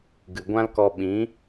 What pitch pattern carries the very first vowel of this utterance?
low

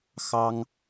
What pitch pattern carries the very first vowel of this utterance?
high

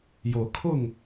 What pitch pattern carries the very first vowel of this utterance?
rising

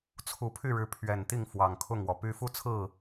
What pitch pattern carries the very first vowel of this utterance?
rising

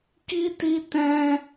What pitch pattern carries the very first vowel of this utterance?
high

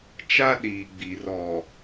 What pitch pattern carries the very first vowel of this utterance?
high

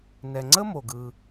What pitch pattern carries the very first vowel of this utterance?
low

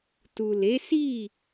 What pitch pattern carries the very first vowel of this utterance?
low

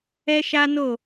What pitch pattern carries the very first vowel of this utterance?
high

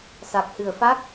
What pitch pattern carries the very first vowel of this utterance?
low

